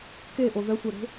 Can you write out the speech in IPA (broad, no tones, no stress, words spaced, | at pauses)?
keʔo ðœsʷɛɾe̤